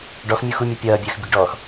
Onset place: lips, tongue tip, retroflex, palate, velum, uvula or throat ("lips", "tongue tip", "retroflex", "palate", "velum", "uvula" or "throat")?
retroflex